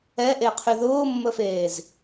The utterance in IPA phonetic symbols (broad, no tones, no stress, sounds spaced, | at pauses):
ɛ ʔ e qʰ y ð ʊː mː ə f eː z